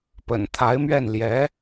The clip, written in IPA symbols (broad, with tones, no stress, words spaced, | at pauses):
pə̰˨˩nt̪ʰa˧˥ɪ̯mɥɛ˥˩n ljɛ˧˥